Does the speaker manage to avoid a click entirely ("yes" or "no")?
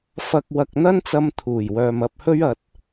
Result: yes